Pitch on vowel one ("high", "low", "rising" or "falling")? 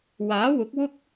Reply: rising